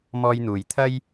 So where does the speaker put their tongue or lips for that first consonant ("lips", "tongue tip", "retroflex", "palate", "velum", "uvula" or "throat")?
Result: lips